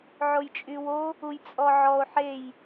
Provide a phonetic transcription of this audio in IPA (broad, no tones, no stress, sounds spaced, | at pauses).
ʕ o j t͡ʃʼ y w o | u j t͡sʼ ɔ ʕ ɔ o̯ ħ e j